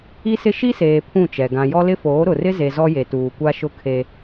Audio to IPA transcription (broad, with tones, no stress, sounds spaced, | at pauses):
i˦ s ɪ˦ ʃ i˦ s eː˨ pʰ ũ˦˨ t͡ʃ ɛ˨ ɡ ã˨ j ɔ˦ l ɪ˦ f oː˨˦ ɾ ʊ˨ r ɪ˦ z e˨ z ɔ˦ j e˨ t uː˨ kʷ a˦ ʃ ʊ˦˨ kʰ e˦